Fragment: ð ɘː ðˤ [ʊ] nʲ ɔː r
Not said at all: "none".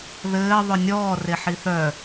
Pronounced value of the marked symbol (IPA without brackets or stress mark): ʊ